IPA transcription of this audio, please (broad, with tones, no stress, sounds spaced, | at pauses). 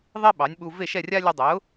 ðˤ e˥ ɓ ɑ˩˥ nʲ ɓ u˧ v e˥˩ ʃ ɛ˥˩ rʲ a˥ lʲ ʌ˧ dˤ ɛ˩˥ ʊ̯